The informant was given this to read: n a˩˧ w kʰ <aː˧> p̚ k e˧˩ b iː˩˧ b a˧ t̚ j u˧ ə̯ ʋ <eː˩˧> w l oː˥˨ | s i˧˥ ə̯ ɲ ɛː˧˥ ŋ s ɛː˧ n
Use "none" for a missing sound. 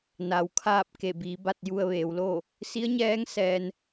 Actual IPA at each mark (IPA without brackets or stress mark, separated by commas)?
aː˥˨, eː˩˧